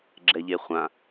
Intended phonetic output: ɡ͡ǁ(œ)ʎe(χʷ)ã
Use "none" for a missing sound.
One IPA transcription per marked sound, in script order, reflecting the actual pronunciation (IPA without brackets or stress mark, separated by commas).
ɛ, χʷ